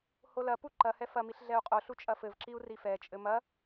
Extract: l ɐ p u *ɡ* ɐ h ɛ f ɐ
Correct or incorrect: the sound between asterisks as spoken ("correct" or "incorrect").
incorrect